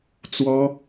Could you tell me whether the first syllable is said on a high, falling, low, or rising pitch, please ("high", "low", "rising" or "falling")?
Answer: high